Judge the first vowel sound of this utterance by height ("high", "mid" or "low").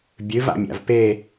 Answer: high